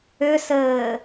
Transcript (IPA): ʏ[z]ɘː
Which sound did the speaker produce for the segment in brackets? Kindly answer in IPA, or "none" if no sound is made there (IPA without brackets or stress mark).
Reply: s